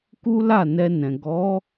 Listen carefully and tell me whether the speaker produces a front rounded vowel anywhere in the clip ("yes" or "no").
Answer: no